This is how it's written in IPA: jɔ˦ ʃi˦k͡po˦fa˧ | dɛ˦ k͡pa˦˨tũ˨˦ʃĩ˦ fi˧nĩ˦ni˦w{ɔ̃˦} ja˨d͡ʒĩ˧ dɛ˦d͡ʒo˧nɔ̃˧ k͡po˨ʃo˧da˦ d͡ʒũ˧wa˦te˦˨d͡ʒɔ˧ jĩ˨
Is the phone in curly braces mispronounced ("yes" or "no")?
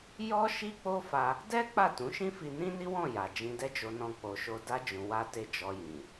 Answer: yes